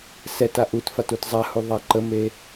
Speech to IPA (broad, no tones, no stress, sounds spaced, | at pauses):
s ɛ t a ʔ u t f a t u t zˤ a h u ðˤ a ǃ ə m e